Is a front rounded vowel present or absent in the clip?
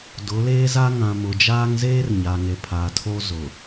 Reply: absent